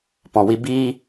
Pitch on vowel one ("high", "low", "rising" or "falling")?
low